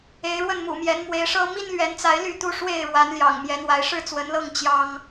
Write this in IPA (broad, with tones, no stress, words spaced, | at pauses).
e˨˦ɪ̯ɻwə˥˨nmṵ˨˩mjɛ˨˦n mwe˨˦ɪ̯ʂɤ˦ mi˦nlɥɛ˨˦nt͡sa˨˦ɪ̯ ly˥˨t̪u˦ ʂwe˥˨ɪ̯ɻwa˨˦nljɑ̰˨˩ŋ mjɛ˨˦ n̪wa˨˦ɪ̯ ʂɻ̩˥˨t͡swə˨˦nlɤ˥˨ŋ t͡ɕjɑ˦ŋ